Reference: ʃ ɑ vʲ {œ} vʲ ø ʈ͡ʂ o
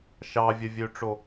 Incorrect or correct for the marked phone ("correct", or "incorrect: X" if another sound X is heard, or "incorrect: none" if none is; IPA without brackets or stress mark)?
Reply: correct